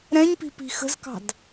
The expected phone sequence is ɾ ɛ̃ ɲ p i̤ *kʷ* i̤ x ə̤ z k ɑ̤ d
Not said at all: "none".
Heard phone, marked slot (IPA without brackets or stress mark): p